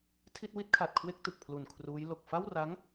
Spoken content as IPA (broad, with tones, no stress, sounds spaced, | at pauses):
tʰ i˥˩ t̚ w i˥˩ t̚ kʰ a˨˩ t̚ kʰ w e˥˩ k̚ t ɯ˨˩ k̚ pʰ l u˨˩ n kʰ r uː˦˥ j l o˨˩ k̚ f a˥˩ w r a˦˥ ŋ